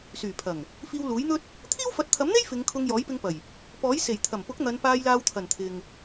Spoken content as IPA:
s yː˨˩ pʰ ɐ˨˩ ŋ | f iː˧ w l uː˨˥ j n̪ ɵ˥ t̚ | t̪ʰ iː˥ w f ɐ˨˥ t̚ t̪ʰ ɐ˨˥ m n̪ e˥ j f ɪ˨˧ ŋ kʰ ʊ˧ ŋ j ɔː˨˥ j p ɪ˧ ŋ p ɐ˨˩ j | p ɔː˨˥ j s e˨˩ j t̪ʰ ɐ˨˩ m p ʊ˨˥ k̚ n̪ ɐ˨˧ n p aː˧ j l aː˧ w t̪ʰ ɐ˨˩ n t̪ʰ ɪ˨ ŋ

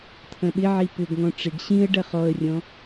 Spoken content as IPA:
t̪ʰ ɐ̃ ɓ ɪ ʕ i p ʏ ɡ ŋ ɔ̃ ʈ͡ʂ ɪ ɡ ɕ ĩ ə̯ ɖ ɐ χ ɔ ə̯ rʲ ɔ̃

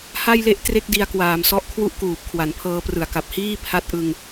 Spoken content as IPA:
h a˥˩ j l e˥˩ ʔ t r e˥˩ k̚ d i˧ a̯ k w aː˩˦ m s ɔ˦˥ ʔ kʰ w u˥˩ ʔ k uː˨˩ p̚ kʰ w a˩˦ n pʰ ɤː˧ p r ɯ˨˩ a̯ k a˨˩ p̚ h iː˥˩ pʰ a˦˥ t̚ ʔ ɯ˧ ŋ

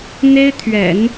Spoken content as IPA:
n̪ e˥ ɪ̯ t̪ʰ ɥ ɛ̰˨˩˦ n

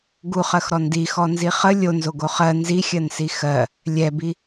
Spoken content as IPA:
ɡ u χ ɜ x ɾ ɔ n d i x ɔ n z i χ ə lʲ o n z o ɡ o χ ɜ n z i xʲ ɜ n s i x ɜ | lʲ ɛ b i

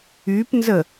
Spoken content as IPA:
y p n z ə

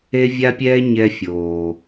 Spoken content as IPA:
e˦ vʲ a˦ pʲ ɛː˦ ɲ ɛ˦ fʲ oː˨

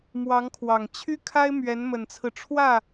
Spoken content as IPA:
m w ɑ˧˥ ŋ kʰ w ɑ˨˩ ŋ t͡ɕʰ y˥ kʰ a˥ ɪ̯ m ɥ ɛ˧˥ n m ə˨˩ n t͡sʰ ɹ̩˦ ʈ͡ʂʰ w ä˥˩

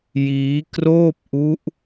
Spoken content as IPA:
j iː˦˥ k r oː˥˩ p̚ ʔ u˦˥ ʔ

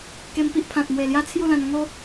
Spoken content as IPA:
k e˧ m p i˦ ʔ pʰ ã˨ t̚ m w e˨˩ l j a˦ t͡sʰ j u˥˧ l ã˧ n ŋ o˦

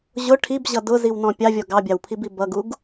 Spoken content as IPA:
ʑ ʊ ʈʰ i b ʑ ʌ d ʊ z i w n ɔ̃ pʲ ɑ vʲ ɔ ɡ ɑ bʲ ɑ w pʰ i b i b ʌ ɡ u ɡ

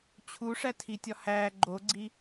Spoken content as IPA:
t͡ɕʰ u ʂ æ tʰ i tʲ ɒ h æ ɡ͡ǃ o ɡ͡ǀ i

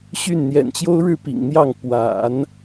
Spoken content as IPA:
ɕ y˥˩ n n̪ j ɛ̰˨˩ n t͡ɕ j o˥ ʊ̯ ɻ ɻ̩˥˩ p ḭ˨˩ ŋ n̪ j ɑ˥˩ ŋ p w a̰˨˩˦ n

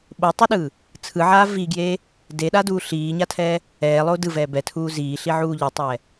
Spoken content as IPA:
ɓ o tˤ u ɗ ɯː | t͡sʰ ɯ ʕ aː v i ɡ j eː | d e ɗ a d uː ɬ iː ɲ a tʰ ɛː | ɛː lˠ o d ɯ v ɛː b ɛ tʰ uː z iː ɬ i ʕ uː ʎ i tˤ ɛː

